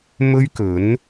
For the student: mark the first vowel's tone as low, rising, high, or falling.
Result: high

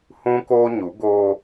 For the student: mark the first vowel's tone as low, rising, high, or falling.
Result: high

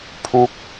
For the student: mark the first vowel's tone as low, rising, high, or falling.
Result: falling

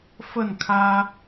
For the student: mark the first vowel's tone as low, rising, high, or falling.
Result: falling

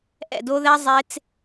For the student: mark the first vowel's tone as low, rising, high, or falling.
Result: falling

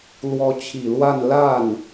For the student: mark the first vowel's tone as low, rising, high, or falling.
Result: rising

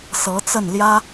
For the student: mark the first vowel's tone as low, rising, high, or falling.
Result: rising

